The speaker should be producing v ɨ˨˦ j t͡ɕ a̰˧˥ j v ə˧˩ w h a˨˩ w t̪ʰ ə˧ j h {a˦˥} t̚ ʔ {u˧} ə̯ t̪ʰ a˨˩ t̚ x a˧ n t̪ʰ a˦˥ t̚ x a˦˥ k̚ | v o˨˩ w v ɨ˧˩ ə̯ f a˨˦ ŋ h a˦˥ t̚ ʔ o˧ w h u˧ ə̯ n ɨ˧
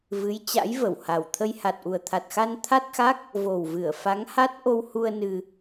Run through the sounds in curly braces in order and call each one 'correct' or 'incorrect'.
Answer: incorrect: a˨˩, incorrect: u˨˩

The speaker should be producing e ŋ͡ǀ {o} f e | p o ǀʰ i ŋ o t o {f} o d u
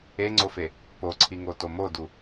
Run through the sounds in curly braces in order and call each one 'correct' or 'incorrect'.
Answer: correct, incorrect: m

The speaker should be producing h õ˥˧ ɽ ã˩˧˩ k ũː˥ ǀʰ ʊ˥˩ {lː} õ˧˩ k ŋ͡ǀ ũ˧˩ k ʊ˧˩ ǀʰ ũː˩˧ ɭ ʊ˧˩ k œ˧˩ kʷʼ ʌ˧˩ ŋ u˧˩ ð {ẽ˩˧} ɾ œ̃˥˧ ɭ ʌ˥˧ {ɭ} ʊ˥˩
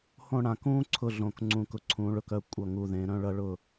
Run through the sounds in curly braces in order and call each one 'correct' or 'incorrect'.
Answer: incorrect: ɮ, correct, correct

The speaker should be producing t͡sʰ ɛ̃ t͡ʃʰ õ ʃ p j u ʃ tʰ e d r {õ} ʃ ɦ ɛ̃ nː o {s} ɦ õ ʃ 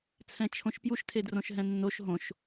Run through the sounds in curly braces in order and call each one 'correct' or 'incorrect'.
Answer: correct, incorrect: ʃ

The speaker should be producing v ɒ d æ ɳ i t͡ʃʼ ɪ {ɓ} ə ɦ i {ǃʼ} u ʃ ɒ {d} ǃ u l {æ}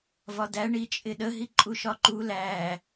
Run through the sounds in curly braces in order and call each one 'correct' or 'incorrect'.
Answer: incorrect: ɗ, correct, incorrect: none, correct

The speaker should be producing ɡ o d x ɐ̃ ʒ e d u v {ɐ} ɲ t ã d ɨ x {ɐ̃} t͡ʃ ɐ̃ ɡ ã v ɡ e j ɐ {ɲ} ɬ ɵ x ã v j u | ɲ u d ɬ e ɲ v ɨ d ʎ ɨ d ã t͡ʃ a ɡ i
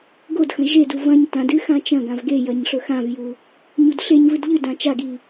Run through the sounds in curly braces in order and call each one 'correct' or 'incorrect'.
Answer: incorrect: ɐ̃, incorrect: ã, correct

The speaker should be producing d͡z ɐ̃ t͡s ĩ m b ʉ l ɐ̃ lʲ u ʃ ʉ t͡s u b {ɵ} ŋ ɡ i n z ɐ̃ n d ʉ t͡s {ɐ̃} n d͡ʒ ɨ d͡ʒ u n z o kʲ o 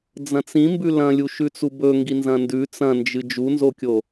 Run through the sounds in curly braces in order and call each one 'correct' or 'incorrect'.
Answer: correct, correct

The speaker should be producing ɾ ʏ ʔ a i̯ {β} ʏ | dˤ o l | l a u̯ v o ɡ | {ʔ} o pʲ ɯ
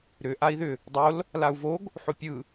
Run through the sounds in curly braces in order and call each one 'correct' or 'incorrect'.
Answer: incorrect: ð, incorrect: ħ

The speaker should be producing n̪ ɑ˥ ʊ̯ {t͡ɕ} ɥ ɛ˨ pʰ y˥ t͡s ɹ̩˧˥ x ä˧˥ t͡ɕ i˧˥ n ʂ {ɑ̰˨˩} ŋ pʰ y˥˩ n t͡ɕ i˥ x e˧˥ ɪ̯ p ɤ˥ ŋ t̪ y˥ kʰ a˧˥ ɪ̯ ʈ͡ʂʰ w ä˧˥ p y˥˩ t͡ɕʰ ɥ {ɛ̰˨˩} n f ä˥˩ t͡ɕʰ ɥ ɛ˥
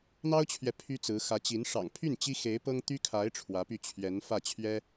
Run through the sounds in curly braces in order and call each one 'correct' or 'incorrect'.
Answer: incorrect: t͡ɕʰ, correct, incorrect: ɛ˧˥

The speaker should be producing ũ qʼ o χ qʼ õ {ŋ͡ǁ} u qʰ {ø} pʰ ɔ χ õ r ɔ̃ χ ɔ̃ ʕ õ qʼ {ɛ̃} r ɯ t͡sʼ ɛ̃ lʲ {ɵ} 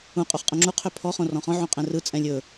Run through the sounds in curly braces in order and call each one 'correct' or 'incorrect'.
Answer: correct, correct, correct, correct

